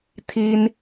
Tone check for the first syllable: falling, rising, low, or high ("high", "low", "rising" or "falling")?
high